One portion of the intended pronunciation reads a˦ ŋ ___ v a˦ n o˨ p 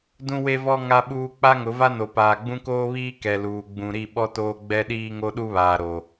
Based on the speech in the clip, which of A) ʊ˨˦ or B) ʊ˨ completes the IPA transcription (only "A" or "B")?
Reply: A